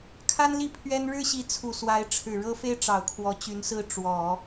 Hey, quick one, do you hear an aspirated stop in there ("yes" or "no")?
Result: yes